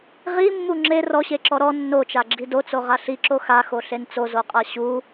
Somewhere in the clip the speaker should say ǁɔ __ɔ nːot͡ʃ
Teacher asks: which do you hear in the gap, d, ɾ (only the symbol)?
ɾ